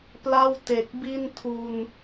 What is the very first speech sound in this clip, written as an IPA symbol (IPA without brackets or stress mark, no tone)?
p